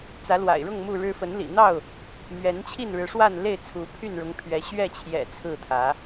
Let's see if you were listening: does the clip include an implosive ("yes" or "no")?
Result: no